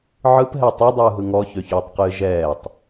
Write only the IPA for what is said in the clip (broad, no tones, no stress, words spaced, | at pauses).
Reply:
ʕɯpɦɛ tˤɯdˤɯːɦɯ ŋɔçøçøːtˤqɨː ʒɛːtˤ